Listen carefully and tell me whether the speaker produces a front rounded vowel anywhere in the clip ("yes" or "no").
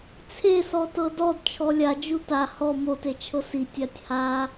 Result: no